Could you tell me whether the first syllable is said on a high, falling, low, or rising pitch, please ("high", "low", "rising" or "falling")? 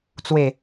low